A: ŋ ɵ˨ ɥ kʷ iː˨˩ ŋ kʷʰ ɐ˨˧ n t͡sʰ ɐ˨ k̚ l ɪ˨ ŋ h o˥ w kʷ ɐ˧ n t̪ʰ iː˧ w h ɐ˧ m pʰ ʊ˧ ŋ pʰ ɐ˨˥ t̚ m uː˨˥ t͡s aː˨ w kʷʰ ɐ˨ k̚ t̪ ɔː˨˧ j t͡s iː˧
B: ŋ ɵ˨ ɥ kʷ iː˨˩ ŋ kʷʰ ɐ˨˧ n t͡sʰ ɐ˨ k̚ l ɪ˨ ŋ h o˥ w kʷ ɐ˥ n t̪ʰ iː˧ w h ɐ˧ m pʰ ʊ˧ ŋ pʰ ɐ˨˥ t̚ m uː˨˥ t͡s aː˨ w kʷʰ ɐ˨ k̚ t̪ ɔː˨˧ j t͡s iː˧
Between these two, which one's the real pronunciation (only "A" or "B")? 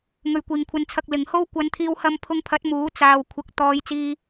A